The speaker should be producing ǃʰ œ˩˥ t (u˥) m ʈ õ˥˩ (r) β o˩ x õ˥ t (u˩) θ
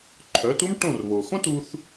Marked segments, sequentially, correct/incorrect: correct, correct, incorrect

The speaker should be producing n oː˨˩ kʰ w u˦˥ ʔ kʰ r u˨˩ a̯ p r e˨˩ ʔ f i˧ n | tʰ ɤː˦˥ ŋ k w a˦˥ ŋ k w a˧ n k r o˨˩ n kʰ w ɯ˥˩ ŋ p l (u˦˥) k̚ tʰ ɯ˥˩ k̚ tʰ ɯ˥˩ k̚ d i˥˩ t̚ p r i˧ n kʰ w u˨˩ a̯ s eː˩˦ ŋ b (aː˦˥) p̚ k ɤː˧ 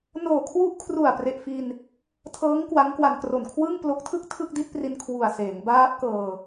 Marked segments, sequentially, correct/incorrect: incorrect, correct

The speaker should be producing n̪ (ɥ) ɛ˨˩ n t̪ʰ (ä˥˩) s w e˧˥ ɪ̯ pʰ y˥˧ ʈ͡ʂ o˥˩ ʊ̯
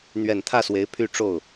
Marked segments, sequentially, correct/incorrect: correct, correct

